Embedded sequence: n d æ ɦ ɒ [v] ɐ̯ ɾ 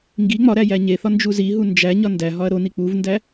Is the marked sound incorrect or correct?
incorrect